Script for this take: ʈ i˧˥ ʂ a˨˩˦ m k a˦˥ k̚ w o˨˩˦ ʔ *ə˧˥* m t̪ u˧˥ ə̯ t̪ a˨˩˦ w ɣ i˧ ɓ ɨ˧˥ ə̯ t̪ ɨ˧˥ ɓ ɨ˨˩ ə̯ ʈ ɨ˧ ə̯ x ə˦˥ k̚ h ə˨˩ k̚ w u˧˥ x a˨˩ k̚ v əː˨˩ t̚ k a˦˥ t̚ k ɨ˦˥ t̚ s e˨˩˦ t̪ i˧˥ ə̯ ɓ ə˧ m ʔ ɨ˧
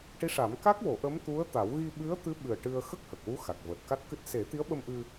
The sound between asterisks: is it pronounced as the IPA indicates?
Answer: yes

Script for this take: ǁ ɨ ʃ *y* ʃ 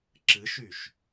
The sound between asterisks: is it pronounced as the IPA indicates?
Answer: yes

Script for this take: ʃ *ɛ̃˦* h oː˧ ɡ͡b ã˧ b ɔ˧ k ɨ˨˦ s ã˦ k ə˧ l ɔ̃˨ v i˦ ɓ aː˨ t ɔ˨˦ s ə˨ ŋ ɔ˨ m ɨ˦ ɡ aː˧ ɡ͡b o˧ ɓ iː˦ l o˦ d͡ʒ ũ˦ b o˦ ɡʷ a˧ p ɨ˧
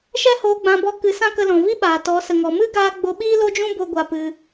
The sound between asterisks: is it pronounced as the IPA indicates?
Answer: no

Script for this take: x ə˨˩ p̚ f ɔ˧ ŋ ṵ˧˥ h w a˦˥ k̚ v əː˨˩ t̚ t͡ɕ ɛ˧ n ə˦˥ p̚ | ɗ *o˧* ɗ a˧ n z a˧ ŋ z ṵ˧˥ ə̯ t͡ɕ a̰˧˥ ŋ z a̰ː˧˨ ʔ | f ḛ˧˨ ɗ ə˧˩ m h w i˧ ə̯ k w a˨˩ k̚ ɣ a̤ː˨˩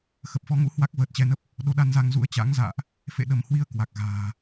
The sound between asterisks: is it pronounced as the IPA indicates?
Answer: yes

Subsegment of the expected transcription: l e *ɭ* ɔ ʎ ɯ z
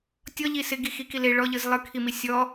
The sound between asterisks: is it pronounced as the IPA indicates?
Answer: yes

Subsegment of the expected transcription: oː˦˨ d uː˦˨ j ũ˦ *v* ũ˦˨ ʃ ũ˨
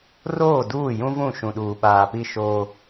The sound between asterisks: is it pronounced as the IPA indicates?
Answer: yes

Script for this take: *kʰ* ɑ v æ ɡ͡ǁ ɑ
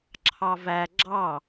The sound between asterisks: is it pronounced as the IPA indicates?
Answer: no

